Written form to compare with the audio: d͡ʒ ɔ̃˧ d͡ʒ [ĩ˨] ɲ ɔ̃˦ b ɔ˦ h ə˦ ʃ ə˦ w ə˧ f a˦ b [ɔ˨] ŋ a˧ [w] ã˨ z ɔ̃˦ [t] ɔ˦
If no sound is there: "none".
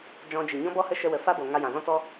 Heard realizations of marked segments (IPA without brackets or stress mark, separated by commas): i˨, o˨, j, t